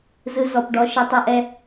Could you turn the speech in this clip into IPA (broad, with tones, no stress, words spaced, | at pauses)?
zɯ˨ zɔ˨p ɖɔ˨˦ʃɨ˨tˤɨ˦ʔɛ˦